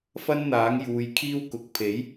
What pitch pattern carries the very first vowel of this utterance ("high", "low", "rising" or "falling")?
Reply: high